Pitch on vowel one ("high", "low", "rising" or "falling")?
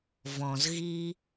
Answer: low